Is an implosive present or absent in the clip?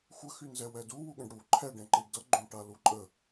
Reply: present